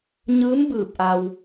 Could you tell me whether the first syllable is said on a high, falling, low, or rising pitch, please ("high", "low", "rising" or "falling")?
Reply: rising